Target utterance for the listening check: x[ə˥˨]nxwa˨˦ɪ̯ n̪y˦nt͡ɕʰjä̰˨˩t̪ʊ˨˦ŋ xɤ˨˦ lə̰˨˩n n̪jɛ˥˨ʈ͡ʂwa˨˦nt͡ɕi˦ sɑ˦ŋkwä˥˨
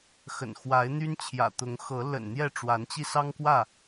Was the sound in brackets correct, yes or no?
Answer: no